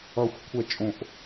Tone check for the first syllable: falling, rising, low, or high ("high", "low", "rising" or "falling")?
low